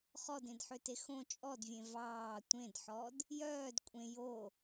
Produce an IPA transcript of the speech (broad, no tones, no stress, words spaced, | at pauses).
χɔdẽdħøte xõ t͡ʃʼɔdvʲẽ vɑː tʷẽdħɔd | jœːd kʷʼẽ jo